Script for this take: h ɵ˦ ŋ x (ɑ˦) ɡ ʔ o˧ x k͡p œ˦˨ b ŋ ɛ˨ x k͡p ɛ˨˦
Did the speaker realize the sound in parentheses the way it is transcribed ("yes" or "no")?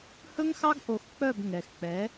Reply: yes